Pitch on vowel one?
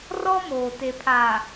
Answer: high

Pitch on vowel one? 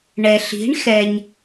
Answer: low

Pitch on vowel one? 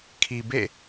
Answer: low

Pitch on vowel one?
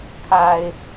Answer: high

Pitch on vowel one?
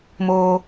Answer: high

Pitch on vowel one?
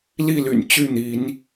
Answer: falling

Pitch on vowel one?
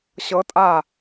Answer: rising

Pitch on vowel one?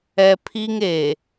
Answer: high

